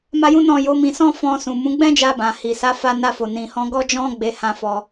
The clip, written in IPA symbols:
m a˦ j ũ˦ n ɔ̃˦˨ j o˨˦ m ĩ˧ s ɔ̃˦ f ɔ̃˧ s ũ˨ m ũ˨˦ ɡ͡b ɛ̃˦ d͡ʒ a˧ b ã˨ h i˨ s a˨˦ f a˧ n a˧ f o˨ n ĩ˨ h ɔ̃˧ ɡ ɔ˦ d͡ʒ ɔ̃˦ ɡ͡b e˧ h ã˧ f ɔ˧

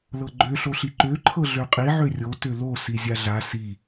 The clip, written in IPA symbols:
l ɤ ɡ͡ǃ ø ɬ o ɬ i ǃ ø ǃʰ ɤ ɮ ø qʼ i ʕ ø rʲ o t ø l o s i zʲ a ɮ a s i

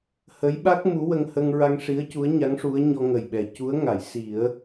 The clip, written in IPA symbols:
h ə˧˥ j ɓ a˦˥ k̚ m u˧˥ w ə˧ ŋ h ə˧ ŋ ɹ a˧ ŋ ʂ i˧˥ ə̯ c u˧˥ ə̯ ɲ a˧˥ ŋ ʂ u˧˥ ə̯ ɲ ɔ˧ ŋ ə˨˩ j ɓ ɛ˨˩˨ c u˧˥ ə̯ ŋ a˨˩˨ j s i˨˩˦ ə̯

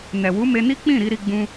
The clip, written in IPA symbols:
n ɛ˨ w u˨˦ m e˧ n i˦ k͡p ĩ˦˨ ɾ i˧ ɾ i˧ ɡ͡b ũ˧

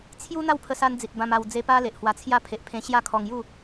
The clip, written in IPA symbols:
t͡sʰ j u˦ n̪ a˥˧ w pʰ ə˧ s a˧ n d͡z i˨ t̚ b ã˧ m a˧ w d͡z e˧ p a˦ l e˨ ʔ h w a˧ t͡sʰ j a˦ pʰ e˨ ʔ pʰ ẽ˧ ɕ j a˥˧ kʰ ɔ˧ ŋ j u˥˧

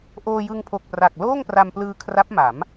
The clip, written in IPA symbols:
ʔ oː˧ j ɯ˧ ŋ pʰ o˨˩ k̚ p r a˨˩ k̚ l oː˥˩ ŋ p r a˧ m p l ɯː˧ kʰ r a˦˥ p̚ m a˩˦ m

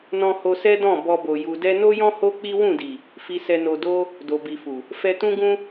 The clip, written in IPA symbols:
n ɔ̃˦ h o˧ s ɛ˦ d ɔ̃˦˨ b ɔ˧ b o˨ j u˨ d ɛ˧ n o˦ j ɔ̃˦ h o˦ k͡p i˦ w ũ˦˨ d i˨ | f i˧ s ɛ˧ n o˧ d o˦ | d o˨ b i˨ f u˨ | f ɛ˧ t ũ˦ ɡ ũ˦

